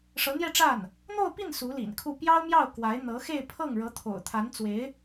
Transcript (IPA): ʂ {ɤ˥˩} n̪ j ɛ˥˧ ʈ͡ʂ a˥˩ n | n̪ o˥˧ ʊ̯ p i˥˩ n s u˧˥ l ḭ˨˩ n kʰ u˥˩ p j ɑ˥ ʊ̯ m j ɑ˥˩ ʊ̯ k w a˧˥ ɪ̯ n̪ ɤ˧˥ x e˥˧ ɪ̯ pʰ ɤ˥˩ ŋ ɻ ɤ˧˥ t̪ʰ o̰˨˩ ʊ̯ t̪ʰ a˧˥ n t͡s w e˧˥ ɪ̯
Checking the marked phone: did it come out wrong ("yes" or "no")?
yes